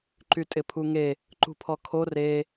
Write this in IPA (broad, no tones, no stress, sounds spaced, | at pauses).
ǃ y tʼ ɪ pʰ u ŋ e | ǃ ṳ pʰ ɔ kʰ o r e